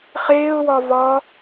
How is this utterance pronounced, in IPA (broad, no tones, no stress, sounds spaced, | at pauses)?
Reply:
χ eː ʊ̯ w ɒ v ɒ